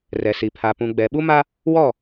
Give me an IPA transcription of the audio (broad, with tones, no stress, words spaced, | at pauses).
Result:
rɛ˨si˨pʰa˨ pũ˨ɡ͡bɛ˨ ɓu˦ma˦ | wɔ˦˨